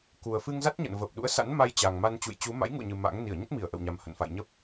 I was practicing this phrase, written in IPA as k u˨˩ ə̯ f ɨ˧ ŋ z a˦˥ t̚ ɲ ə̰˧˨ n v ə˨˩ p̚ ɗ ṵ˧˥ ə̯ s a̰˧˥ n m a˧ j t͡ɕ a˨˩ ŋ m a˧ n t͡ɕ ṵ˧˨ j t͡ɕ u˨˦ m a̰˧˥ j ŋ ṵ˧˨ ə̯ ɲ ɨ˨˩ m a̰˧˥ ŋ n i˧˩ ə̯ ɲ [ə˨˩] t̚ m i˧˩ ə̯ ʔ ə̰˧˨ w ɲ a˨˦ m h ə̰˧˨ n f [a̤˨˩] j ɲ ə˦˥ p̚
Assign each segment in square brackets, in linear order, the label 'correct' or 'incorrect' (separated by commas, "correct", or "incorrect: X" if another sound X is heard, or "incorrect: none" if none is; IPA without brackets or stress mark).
incorrect: ə˦˥, incorrect: a̰˧˨